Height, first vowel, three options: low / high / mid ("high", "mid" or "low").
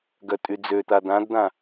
mid